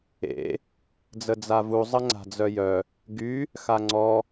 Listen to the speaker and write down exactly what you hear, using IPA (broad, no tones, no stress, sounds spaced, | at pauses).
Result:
ḛ | d͡z ə d͡z a v u zˤ ə ŋ͡ǀ a̤ d͡z œ j œ | ɡ y | x a ŋ͡ǀ ɔ